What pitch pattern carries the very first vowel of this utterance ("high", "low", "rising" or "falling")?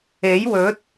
rising